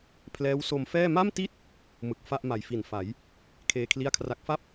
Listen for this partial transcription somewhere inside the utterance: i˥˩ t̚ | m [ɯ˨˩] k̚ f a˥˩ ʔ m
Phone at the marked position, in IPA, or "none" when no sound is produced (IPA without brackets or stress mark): ɯ˨˩